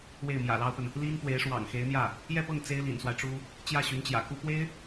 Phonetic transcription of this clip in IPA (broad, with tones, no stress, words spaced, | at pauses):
we˥˩ɪ̯mjä̰˨˩lɑ˥ʊ̯pə˨n | li˥n pwe˧˥ɪ̯ʂwɑ̰˨˩ŋxe˧˥ɪ̯n̪jä˥˩ | jɛ˥˧pɤ˥˩ŋ t͡se˥ɪ̯lḭ˨˩nswa˦ɪ̯ʈ͡ʂu˥ | t͡ɕjä˥˩ɕy˧˥nt͡ɕjä̰˨˩ku˥ pwe˥ɪ̯